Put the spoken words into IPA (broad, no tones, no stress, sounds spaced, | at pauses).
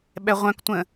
ɓ ɛ ʁʷ œ̃ k tʷ ə̃